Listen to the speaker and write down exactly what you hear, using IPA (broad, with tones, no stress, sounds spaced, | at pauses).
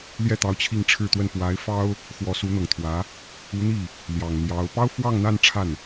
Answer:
l j ɛ˥˩ t̪ ɑ˧˥ ʊ̯ t͡ɕʰ i˥˧ ŋ ʈ͡ʂʰ ɻ̩˥˧ t̪ w ə˥˩ n p w a˧˥ ɪ̯ f ɑ˥ ʊ̯ | x w ɔ˧˥ s u˧˥ n̪ ɤ˨˩ ŋ t̪ʰ w ä˧˥ | u˧˥ n̪ i˥˩ | l j ɑ˨˩ ŋ n̪ j ɑ˧˥ ʊ̯ p ɑ˥ ʊ̯ f w ɑ˥˧ ŋ n̪ a˥˧ n ʈ͡ʂʰ a˥˩ n